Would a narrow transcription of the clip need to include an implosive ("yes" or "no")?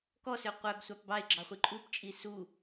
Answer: no